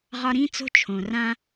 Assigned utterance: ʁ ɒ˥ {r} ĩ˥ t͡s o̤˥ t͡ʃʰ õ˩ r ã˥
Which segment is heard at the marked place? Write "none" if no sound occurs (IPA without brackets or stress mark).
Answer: ɾ